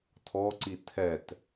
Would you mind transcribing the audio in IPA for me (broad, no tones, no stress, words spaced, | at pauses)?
tʰɔǀi tʰɛt